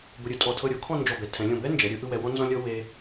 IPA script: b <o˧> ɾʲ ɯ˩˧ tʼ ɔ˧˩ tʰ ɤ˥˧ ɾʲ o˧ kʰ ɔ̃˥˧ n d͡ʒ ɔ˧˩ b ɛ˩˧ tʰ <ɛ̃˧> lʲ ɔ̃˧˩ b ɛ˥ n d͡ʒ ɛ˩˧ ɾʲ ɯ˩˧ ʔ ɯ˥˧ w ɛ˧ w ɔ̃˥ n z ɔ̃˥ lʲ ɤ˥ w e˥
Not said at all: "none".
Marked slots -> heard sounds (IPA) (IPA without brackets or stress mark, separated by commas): o˧, ɛ̃˩˧